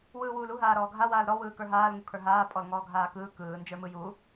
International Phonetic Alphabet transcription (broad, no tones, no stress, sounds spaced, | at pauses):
w ɯː w uː l u ɦ aː ɾ ɔː ɡʱ a w aː l ɾ ɔ w ɯː k ə˞ ɦ aː l ŋ u kʰ ə˞ ɦ aː pʼ ɔ l ŋ ɔː ɡʱ aː k ɯː k ɯː n d͡ʒ ə˞ m ɯ j u